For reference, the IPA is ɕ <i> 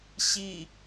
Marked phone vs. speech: correct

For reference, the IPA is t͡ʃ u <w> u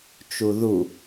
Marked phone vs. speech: incorrect: ð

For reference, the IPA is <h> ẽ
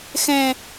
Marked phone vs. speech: incorrect: x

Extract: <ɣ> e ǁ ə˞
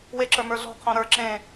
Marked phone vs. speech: incorrect: w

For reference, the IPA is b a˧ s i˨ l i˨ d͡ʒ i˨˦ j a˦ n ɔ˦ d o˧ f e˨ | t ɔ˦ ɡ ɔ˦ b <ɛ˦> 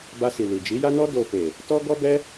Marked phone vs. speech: correct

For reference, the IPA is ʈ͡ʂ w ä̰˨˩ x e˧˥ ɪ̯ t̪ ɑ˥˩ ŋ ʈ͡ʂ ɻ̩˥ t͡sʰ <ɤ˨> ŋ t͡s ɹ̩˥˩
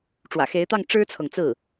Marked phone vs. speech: correct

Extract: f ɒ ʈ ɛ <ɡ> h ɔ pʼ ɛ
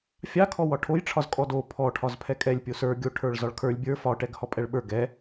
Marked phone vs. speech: correct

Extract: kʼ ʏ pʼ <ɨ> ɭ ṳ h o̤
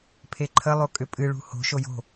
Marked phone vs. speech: correct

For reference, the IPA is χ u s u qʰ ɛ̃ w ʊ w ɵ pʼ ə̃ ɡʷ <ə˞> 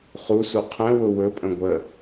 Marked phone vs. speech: incorrect: ə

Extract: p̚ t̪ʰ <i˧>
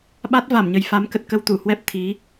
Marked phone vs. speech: incorrect: i˨˦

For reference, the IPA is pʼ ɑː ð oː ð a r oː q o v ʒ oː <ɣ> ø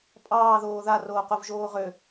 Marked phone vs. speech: incorrect: ʁ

